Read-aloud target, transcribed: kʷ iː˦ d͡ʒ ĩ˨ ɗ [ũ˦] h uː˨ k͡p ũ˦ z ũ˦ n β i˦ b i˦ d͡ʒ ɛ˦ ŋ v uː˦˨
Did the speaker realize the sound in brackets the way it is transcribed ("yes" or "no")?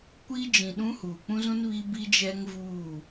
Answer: yes